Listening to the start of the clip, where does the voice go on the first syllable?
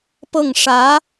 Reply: falling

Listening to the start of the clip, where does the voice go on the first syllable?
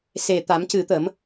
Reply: low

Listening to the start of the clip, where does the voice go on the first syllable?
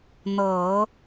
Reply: low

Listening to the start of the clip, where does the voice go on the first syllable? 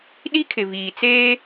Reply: high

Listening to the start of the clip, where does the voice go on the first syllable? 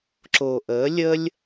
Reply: low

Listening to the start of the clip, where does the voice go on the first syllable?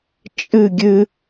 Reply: falling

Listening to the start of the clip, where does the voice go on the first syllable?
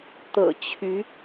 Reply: low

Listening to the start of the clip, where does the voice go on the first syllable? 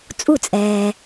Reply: falling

